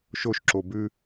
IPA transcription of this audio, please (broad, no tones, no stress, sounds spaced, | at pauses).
ʃ o ʃ ǁ o b ʉ